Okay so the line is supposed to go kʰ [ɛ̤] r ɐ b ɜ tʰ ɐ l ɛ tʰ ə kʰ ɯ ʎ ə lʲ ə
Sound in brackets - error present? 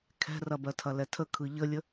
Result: no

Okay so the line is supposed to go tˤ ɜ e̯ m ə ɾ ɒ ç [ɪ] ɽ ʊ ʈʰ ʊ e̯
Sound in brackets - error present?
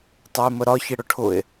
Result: no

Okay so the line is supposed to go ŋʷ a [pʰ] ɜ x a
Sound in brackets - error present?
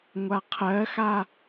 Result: yes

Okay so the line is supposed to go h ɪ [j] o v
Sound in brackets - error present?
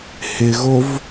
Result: yes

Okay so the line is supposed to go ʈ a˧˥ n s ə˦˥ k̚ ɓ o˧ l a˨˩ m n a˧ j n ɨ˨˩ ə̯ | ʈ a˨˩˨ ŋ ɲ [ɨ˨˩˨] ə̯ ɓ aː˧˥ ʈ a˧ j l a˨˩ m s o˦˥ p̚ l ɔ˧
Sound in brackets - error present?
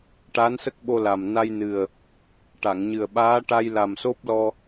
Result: yes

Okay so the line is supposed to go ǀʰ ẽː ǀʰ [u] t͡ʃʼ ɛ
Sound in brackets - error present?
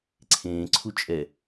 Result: no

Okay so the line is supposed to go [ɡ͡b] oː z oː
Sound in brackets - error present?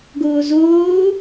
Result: yes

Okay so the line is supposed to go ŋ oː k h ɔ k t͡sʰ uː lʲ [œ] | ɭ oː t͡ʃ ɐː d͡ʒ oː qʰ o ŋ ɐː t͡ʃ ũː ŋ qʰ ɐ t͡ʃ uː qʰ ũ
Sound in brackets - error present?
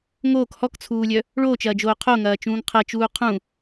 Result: no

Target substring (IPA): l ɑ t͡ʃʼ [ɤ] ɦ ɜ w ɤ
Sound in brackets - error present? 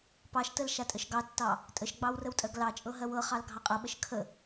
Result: no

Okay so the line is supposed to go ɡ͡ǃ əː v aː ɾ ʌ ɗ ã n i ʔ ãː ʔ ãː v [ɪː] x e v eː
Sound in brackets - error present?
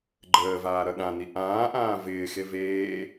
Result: no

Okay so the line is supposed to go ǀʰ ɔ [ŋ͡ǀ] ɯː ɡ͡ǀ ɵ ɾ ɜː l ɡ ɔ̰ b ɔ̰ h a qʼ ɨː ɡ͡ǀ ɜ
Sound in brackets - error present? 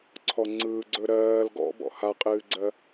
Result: no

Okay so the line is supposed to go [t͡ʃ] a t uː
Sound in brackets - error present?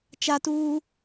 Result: no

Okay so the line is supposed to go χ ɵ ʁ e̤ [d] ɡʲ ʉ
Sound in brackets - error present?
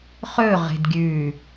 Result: no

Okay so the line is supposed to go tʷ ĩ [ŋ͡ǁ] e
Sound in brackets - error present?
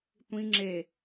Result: no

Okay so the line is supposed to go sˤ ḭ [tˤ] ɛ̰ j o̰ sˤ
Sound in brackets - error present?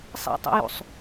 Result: no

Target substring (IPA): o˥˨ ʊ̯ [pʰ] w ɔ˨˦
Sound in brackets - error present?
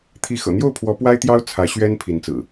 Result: no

